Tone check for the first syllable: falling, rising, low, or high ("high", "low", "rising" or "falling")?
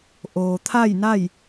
low